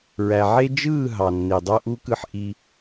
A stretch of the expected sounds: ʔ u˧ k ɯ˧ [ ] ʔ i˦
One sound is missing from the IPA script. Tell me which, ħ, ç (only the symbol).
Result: ħ